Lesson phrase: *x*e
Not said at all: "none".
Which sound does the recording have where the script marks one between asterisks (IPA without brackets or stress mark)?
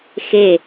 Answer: x